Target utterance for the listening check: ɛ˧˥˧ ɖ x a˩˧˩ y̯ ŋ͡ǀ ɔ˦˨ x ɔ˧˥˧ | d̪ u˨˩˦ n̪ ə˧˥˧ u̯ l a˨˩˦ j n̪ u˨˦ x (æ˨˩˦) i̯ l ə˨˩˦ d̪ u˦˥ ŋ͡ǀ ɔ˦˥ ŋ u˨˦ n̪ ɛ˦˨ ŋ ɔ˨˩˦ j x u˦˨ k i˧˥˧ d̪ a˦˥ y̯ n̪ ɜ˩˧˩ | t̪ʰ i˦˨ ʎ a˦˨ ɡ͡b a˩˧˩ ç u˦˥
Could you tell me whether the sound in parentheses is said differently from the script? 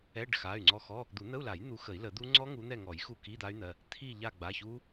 yes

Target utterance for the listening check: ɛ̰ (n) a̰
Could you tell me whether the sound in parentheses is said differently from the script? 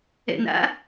no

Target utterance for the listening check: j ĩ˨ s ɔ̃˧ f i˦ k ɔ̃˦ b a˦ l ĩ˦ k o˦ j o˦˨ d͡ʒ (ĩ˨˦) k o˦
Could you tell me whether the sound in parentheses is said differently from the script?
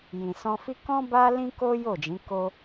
no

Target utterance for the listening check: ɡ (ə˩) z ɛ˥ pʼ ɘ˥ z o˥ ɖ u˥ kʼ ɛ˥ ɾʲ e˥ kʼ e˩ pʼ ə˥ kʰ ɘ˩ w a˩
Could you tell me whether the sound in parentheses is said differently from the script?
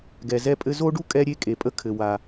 yes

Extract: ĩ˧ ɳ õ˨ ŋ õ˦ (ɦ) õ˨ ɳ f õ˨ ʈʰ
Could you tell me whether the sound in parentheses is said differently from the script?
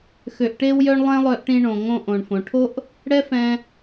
yes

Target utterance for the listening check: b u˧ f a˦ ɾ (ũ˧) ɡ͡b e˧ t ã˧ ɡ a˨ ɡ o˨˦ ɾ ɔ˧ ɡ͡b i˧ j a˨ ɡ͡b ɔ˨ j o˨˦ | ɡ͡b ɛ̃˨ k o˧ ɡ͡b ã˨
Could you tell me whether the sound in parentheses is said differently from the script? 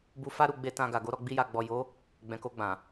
yes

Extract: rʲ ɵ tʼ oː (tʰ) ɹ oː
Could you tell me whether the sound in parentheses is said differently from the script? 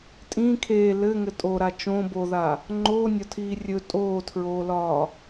no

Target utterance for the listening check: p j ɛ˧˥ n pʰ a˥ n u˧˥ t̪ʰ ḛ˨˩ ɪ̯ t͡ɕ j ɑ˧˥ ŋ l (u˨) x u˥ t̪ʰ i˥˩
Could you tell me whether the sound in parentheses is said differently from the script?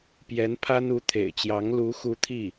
yes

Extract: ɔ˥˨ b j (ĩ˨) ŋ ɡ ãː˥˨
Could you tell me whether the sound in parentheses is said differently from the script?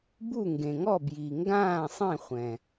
yes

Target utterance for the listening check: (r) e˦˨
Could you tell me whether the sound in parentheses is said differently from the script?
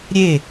yes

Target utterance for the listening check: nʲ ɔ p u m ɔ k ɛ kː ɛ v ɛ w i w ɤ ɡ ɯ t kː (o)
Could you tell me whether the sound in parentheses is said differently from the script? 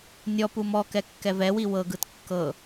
yes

